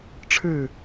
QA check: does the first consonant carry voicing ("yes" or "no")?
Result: no